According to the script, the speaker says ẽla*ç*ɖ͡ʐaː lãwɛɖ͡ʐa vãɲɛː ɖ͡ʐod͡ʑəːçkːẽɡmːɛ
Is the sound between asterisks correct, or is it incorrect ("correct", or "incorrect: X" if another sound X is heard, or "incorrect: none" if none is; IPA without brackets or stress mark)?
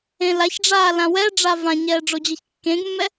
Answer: correct